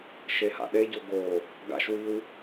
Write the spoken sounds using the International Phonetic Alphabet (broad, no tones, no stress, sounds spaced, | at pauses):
ʃ e h a̰ ɗ e ɟ o ɡ o | ɡ a̰ ʃ w i w